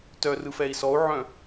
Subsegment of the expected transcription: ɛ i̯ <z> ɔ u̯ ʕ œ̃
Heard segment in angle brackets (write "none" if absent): s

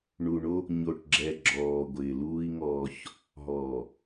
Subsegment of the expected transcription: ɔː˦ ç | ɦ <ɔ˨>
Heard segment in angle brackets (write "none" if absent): ɔ˨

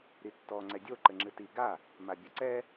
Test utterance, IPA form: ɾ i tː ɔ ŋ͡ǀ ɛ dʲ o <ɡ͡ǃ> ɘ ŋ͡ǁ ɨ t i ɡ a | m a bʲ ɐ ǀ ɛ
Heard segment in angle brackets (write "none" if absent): ǃ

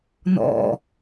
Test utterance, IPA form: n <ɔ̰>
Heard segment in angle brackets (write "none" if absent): ɔ̰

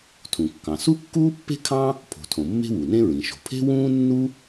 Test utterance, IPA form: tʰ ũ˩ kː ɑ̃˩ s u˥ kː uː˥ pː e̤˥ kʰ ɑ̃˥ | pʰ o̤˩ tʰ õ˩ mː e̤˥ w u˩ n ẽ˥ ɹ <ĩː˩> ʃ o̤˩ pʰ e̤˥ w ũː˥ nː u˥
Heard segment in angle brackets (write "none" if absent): ĩ˩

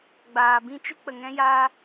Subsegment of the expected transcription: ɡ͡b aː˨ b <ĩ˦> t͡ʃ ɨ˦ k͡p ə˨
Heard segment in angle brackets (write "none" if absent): ĩ˦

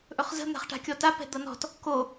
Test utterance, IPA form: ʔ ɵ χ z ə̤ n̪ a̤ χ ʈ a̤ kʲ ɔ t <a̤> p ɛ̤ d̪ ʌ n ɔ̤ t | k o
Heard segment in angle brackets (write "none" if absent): a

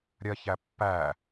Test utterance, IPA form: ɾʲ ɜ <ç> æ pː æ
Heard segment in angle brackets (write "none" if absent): ç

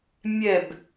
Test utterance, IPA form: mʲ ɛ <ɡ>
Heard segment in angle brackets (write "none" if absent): b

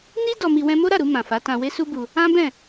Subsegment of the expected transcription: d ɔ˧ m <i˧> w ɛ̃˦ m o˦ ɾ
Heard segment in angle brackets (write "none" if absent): i˧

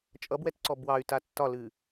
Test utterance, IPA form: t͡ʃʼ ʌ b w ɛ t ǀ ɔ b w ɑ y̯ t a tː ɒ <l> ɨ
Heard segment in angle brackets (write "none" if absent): l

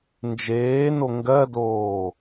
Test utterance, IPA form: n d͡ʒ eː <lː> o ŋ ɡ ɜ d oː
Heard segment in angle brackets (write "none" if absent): n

